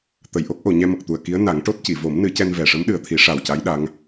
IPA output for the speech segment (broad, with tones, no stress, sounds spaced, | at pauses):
t̪ ə˨˩˨ j ʔ o˦˥ k̚ ʔ o˨˩˨ ɲ ɛ˧ m ə˨˩ k̚ t̪ u˨˩ ə̯ k i˧˥ ə̯ n a˨˩˦ ŋ ʈ o˦˥ t̚ c i˨˩˨ v o˨˩˦ m n ɨ˨˩˦ c ɛ˧ n v ɛ˨˩ ʂ ə˧˥ m ɗ ɨ˨˩ ə̯ t̪ʰ i˨˩˦ ʂ a˨˩ w c a˧˥ j ɗ a˧˥ ŋ